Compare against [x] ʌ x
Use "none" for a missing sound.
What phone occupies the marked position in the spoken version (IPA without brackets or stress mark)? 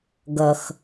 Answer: ɡ